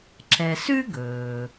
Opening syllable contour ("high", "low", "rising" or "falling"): low